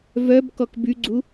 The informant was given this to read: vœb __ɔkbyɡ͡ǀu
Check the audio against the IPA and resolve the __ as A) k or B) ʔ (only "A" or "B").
A